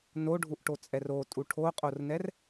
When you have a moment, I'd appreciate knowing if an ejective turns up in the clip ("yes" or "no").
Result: yes